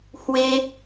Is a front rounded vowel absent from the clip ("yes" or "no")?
yes